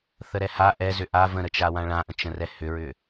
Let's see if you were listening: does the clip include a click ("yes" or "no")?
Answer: no